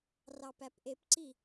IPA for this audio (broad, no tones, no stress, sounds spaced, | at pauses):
r ɑ p æ p ʔ e p ǀ i